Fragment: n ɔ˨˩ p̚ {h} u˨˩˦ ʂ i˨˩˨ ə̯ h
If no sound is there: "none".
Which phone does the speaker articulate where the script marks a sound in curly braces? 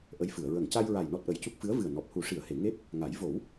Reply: h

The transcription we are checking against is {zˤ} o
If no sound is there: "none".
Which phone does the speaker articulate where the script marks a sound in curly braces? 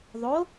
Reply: ðˤ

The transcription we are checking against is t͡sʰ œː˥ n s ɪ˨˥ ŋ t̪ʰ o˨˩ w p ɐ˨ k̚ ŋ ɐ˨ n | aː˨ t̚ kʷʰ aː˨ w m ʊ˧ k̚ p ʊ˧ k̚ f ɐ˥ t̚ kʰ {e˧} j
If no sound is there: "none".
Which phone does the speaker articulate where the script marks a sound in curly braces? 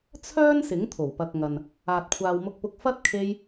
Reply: e˧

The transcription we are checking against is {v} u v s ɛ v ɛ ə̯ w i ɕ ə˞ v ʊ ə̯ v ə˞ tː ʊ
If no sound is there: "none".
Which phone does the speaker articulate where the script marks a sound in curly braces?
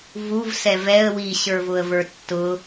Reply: v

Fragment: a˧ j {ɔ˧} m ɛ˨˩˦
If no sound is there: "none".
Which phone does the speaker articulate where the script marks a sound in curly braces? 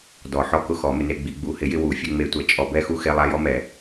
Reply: ɔ˧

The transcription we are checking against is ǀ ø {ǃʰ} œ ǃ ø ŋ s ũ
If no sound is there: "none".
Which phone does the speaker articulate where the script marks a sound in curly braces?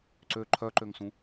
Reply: ǃʰ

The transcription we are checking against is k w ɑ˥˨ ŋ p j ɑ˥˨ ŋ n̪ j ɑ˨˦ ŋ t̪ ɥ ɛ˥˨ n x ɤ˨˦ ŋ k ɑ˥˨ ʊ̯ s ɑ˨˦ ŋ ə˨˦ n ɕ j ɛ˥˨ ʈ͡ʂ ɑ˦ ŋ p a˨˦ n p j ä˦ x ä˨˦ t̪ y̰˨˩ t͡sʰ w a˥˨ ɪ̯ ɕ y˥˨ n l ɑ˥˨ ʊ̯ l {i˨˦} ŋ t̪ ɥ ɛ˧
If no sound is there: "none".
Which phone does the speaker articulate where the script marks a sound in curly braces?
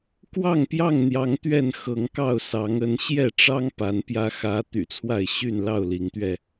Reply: i˨˦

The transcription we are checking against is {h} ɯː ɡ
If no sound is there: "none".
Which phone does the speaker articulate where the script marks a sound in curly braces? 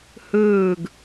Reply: h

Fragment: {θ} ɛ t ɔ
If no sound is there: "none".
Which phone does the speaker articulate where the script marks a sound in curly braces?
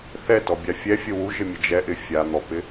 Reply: θ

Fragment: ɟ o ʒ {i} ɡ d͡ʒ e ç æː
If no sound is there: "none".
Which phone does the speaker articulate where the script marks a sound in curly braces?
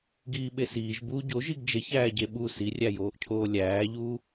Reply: i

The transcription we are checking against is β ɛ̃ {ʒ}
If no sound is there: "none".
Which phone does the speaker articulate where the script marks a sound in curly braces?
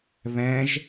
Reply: ʒ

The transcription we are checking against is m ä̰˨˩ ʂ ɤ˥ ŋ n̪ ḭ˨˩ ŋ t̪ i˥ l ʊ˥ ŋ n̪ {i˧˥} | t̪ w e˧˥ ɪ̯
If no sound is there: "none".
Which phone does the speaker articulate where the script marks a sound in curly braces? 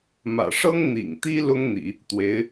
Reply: ḭ˨˩˦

